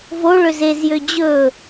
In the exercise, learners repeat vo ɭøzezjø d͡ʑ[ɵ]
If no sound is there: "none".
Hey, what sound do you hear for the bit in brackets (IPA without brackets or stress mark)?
ɵ